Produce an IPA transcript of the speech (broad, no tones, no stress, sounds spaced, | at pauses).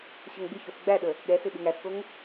ɕ ə ŋ ɡ͡b ɪ ç o s ɡ͡b æ ɗ ə | ɠ ɛ s ɪ ɓ ɪ ŋ æ s k o ŋ